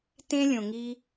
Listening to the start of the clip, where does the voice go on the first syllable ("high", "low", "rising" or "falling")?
high